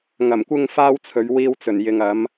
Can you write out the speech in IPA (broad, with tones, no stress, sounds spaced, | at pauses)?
ŋ ɐ˨˩ m kʷ ɪ˧ ŋ f aː˧ w t͡sʰ ɵ˨˧ ɥ w iː˥ w t͡s ɵ˨˩ n j ɪ˨ ŋ ɐ˨˥ m